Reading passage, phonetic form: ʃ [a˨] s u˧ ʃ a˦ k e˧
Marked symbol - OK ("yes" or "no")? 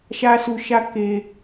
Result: no